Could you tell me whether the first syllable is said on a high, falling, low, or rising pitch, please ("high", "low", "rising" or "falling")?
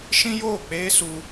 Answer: high